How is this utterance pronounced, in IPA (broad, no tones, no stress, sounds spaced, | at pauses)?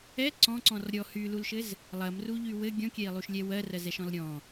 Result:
ɛ ǀ ɔ̃ ǀ ɔ̃ r ɾʲ ɔ h y l u l ʃ ɘ z | lˠ ɐ m r u ʎ y w ɘ ɡʲ ɔ̃ kʲ ɛ i̯ lˠ u ʃ lʲ ɛ w ɜ r ɜ z ɛ ʃ ɔ̃ l ɾʲ ɔ̃